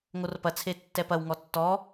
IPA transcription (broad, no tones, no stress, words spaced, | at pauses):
ŋorpɐt͡sʰe tːɛpɐwŋɔ tːɔ